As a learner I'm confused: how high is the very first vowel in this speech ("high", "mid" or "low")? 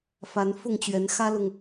low